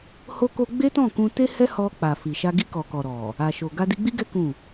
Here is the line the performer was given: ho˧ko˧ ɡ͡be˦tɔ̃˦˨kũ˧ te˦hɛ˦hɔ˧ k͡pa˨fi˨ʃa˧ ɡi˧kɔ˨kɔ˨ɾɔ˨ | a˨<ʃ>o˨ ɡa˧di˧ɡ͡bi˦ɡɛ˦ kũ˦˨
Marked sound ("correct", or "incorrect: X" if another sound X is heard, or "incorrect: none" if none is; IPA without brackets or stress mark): correct